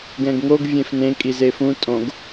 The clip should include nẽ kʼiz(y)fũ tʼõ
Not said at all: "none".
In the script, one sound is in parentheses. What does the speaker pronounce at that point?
e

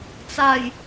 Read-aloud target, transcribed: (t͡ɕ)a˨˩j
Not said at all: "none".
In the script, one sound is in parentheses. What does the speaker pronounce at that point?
t͡s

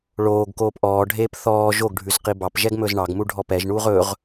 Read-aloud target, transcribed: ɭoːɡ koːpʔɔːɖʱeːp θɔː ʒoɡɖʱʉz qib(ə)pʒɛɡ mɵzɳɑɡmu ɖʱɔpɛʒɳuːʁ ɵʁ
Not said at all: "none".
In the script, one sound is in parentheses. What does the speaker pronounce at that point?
ɑ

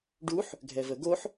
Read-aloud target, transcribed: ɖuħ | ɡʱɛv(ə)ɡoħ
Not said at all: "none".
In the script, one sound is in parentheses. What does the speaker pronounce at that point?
ə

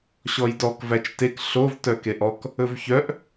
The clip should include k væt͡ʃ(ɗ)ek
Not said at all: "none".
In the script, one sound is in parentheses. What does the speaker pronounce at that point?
t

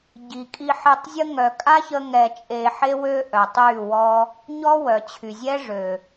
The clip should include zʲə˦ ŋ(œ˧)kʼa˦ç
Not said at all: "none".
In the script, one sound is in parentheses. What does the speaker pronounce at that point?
œ˨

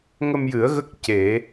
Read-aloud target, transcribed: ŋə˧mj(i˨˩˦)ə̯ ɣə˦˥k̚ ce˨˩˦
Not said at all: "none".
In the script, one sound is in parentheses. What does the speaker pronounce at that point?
ɨ˨˩˦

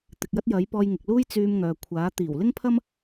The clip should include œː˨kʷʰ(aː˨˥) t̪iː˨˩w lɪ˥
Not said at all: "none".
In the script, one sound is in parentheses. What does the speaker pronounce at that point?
aː˨˥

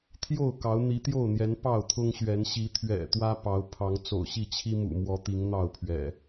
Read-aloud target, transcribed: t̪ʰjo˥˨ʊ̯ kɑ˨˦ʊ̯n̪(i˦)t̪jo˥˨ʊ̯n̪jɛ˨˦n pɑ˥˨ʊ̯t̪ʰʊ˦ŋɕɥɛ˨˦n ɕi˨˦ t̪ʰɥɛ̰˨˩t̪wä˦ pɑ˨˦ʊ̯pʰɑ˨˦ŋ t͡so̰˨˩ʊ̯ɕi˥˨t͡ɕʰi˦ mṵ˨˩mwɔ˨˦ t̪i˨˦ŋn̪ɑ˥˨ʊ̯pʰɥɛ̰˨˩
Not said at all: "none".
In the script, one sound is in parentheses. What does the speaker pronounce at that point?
i˨˦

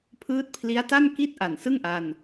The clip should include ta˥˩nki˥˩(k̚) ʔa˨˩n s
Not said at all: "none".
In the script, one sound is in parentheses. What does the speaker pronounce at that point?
t̚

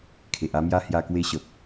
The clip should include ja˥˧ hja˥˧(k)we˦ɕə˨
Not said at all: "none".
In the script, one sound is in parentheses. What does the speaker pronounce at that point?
k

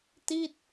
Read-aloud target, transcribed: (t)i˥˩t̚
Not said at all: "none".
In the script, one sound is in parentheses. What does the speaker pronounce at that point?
t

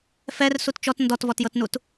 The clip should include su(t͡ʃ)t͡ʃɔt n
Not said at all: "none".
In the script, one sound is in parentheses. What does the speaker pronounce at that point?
t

